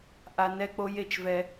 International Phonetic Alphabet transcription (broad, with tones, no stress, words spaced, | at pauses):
ʔa˦ nɛ˦k͡po˦j e˦t͡ʃvɛ˦